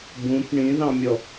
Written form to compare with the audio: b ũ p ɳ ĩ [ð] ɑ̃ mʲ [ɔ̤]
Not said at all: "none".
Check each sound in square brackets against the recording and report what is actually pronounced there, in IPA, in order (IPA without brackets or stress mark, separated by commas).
ð, ɔ